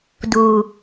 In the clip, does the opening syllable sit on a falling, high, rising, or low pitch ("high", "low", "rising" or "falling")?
low